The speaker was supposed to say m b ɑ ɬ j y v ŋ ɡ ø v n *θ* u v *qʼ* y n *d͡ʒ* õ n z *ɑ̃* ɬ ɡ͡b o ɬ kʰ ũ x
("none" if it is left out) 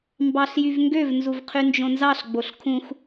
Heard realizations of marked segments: z, qʰ, d͡ʒ, ɑ

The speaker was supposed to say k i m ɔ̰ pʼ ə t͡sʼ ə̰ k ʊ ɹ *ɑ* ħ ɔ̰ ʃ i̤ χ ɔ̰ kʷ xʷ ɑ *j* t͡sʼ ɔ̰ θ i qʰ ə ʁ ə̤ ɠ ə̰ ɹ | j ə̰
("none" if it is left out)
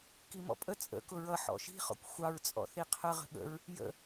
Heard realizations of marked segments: ʌ, ɹ

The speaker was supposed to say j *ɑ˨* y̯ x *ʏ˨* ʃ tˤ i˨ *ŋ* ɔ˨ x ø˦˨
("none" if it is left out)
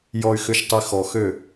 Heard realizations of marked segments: ɔ˨, ʏ˨, x

